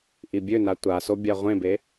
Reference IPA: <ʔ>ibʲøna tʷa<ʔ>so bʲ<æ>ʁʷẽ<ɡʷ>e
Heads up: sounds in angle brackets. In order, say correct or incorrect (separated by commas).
correct, incorrect, incorrect, incorrect